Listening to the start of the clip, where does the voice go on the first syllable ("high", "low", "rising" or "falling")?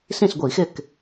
falling